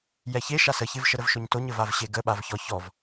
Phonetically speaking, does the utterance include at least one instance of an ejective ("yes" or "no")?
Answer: no